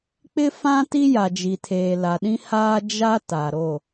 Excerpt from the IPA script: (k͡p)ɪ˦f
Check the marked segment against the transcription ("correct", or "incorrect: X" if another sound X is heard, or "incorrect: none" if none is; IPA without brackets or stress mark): correct